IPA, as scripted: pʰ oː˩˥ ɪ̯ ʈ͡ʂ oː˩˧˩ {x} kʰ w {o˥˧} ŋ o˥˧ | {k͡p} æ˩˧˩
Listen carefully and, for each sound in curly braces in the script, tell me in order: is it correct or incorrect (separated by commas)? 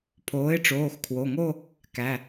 correct, incorrect, incorrect